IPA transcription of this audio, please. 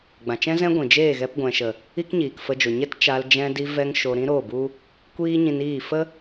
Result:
ɡ͡bã˨t͡ʃɛ̃˦zɛ̃˦ɡʷĩ˨ d͡ʒeː˦˨ɣɛ˧pɡʷɛ̃˨ʃə˨ | i˦kɲiː˨kfə˧d͡ʒo˨ ɲɛ˦tt͡ʃa˧l d͡ʒɛ̃˦ di˧vɛ˧ŋ ʃo˨ɾĩ˧ ɾo˦˨bu˦ | kʷiː˦ɲĩ˧niː˦˨ fə˦

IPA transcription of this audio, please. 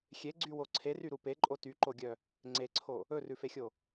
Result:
xʲeɡ͡ǀywo ǀʰeryɾu peǃʼo tyǃoɡʲœ | ŋ͡ǀeǀʰo | ɵrʉfexʲo

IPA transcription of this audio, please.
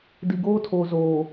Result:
di˨ɡoː˦tʰoː˨ zoː˨

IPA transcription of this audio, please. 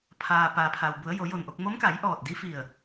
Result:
pʰaː˩ paː˩pʰa˩wbu˩˧ə̯ jo˩˧jo˧˩nʔo˧k̚ mo˧˥mka˩˧jʔɔː˧˩t̚ di˧˥fi˧˩ə̯

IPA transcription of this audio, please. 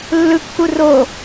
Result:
lːɯkːu ro

